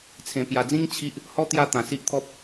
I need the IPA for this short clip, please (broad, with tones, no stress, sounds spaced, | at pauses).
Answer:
t͡sʰ ẽ˧ p j a˧ d͡z ĩ˦ ŋ t͡ɕʰ i˦ ʔ | h ɔ˦ t̪ j a˥˧ t̪ ã˧ s i˦ ʔ t̪ʰ ɔ˦ p̚